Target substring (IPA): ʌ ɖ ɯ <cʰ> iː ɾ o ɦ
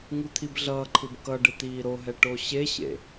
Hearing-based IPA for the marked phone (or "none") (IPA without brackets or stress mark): t̪